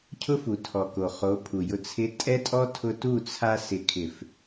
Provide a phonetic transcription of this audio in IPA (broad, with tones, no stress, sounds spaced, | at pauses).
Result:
cʰ ʊ˦ f u˨ tʰ ɔ˨ k o˨ χ o˨˦ pʰ u˨ j ʊ˨ t͡sʰ ɪ˨˦ tʼ ɛ˦ tʼ ɔ˦ tʰ ʊ˧ t u˦˨ t͡sʰ a˧ s ɪ˨ kʰ ɪ˨ f